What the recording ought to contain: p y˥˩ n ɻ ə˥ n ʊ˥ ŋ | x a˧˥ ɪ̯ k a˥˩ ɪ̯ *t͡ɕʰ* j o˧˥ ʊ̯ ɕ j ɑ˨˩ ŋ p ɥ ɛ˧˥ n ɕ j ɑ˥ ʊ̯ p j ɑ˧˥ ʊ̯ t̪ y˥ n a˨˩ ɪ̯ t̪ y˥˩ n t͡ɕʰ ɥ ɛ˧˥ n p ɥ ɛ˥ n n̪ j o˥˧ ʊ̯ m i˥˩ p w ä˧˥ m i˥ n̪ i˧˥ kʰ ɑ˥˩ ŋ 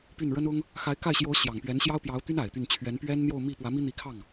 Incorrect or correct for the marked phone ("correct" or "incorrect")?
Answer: incorrect